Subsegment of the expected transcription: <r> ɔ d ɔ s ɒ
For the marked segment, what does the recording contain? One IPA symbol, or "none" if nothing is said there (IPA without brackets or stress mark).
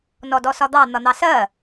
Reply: n